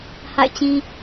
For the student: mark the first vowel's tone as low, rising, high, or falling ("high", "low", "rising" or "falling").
falling